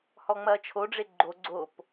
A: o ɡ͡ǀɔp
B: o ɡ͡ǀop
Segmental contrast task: B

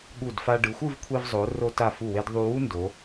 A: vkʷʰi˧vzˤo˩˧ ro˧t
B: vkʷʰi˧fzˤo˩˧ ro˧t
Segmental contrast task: A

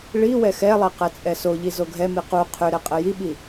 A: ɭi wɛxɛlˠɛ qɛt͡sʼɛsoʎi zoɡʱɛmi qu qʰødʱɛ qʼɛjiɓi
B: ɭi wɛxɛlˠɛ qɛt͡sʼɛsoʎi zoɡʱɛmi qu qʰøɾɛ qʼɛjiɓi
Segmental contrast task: B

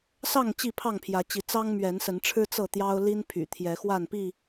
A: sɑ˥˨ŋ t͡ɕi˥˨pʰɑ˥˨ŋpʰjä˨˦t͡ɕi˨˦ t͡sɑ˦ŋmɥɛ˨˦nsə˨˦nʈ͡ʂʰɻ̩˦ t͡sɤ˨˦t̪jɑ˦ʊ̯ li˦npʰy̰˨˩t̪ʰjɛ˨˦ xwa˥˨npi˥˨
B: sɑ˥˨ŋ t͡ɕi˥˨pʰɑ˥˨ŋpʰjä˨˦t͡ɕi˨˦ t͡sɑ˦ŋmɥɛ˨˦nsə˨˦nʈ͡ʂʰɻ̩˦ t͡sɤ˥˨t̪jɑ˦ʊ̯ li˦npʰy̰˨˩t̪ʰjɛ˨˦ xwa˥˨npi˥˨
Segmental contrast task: B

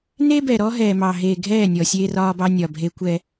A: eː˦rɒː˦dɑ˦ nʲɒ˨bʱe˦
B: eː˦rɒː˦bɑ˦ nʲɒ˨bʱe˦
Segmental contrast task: B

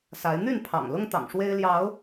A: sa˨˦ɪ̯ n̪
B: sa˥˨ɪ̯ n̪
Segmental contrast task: A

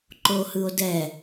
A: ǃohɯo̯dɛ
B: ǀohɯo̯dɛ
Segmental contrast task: A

